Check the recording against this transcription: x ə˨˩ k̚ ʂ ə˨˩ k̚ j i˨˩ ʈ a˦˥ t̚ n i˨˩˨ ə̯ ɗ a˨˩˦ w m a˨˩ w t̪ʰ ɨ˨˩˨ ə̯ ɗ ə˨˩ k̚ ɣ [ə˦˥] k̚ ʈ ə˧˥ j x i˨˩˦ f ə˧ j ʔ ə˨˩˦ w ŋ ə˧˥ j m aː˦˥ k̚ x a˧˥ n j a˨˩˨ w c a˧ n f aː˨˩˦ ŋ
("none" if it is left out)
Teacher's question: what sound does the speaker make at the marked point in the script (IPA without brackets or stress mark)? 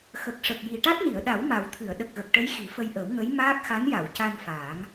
ə˨˩